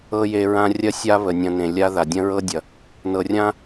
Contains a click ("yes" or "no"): no